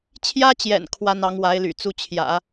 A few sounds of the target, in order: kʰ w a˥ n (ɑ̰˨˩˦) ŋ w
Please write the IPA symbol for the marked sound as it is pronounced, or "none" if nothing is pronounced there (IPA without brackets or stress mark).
ɑ˧˥